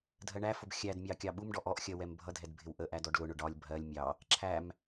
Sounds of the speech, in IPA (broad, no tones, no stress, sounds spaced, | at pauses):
dʱ ɜ ɳ æ f ʊ b xʲ æ d mʲ ɑ kʲ ɑ ɓ u m ɖ ɔ ʔ ɔ ʔ xʲ ɜ w ɛ m bʱ ʌ dʱ ɛ d bʱ ɪ w ʔ ə ʔ æ d ɔ ɖ l ʊ ɳ ʊ ɖ ɒ lʲ bʱ ɜ lʲ mʲ ɑ | ǁʰ æ m